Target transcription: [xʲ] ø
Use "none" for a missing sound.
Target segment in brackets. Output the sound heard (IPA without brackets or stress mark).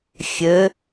xʲ